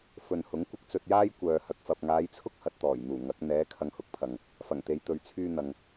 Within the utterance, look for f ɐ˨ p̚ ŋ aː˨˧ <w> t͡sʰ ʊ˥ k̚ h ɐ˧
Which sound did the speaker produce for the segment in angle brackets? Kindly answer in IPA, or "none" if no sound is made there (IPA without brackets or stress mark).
j